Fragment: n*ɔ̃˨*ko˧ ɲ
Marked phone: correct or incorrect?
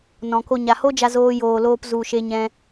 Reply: correct